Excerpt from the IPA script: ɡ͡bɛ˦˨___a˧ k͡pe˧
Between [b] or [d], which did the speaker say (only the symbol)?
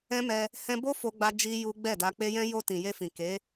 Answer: d